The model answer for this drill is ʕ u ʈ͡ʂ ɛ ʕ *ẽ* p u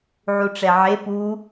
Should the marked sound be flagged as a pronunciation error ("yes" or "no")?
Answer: yes